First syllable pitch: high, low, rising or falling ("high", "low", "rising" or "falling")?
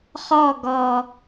falling